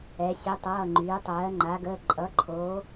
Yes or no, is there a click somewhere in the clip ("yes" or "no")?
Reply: yes